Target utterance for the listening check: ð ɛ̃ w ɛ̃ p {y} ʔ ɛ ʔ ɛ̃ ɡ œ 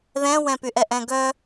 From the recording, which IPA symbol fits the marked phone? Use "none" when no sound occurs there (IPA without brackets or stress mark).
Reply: y